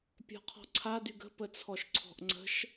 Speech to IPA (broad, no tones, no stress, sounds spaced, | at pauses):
pʲ ɔ̤ qʰ ɔ̤ ǀʰ a d y ɡ ə̤ p ə t͡sʰ ɔ ʃ ǀʰ ɔ̤ ʔ ŋ͡ǀ ə̤ ʃ